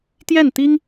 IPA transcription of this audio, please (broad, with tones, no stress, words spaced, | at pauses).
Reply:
t̪jɛ˥˩nt̪i˥ŋ